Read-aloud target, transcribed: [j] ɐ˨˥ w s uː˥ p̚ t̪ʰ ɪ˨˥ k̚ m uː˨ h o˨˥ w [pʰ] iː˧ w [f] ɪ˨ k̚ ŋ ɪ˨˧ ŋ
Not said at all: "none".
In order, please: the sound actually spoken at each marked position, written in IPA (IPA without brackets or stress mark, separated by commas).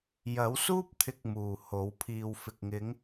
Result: j, pʰ, f